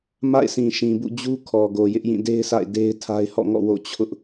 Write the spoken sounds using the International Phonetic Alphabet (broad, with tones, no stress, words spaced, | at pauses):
ma̰˦˨ɪ̯sĩ˨ʃĩ˨bṵ˦˨ d͡ʑu˦kʰɔ˨ɡo˨ jɪ˦ʔjĩ˦˨ de˦ɪ̯sʰa̰˦˨ɪ̯ de˦ɪ̯tʰa˦ɪ̯ hɔ̰˦˨ŋɔ̰˦˨ wo̰˦˨t͡ɕʰʊ˦ʔ